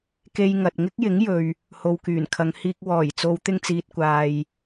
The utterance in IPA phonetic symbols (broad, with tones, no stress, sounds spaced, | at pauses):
k e˧ j ŋ ɐ˨ t̚ ŋ ɪ˥ k̚ j ɪ˨˥ ŋ j ɵ˨ ɥ | h o˨ w k yː˨˩ n kʰ ɐ˨˧ ŋ h iː˧ k̚ w ɔː˨˩ j t͡s o˨˧ w t̪ ɪ˧ ŋ t͡s iː˨ t̚ kʷ aː˨ j